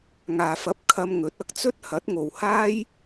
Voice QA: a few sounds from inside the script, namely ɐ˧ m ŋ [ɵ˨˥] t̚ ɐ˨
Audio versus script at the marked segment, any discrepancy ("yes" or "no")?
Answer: no